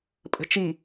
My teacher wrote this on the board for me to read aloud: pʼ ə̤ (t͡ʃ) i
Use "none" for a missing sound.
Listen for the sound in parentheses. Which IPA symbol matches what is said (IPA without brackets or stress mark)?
t͡ʃ